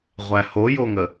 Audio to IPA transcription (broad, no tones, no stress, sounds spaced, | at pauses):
ʁʷ æ h o j o ŋ ə